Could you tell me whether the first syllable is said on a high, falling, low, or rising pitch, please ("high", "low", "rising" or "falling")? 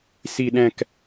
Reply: low